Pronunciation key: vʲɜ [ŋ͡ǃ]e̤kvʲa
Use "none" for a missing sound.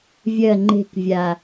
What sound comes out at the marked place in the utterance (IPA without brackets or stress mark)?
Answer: ŋ͡ǃ